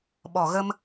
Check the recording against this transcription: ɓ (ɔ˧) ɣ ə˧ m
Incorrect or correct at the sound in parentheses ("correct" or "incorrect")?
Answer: incorrect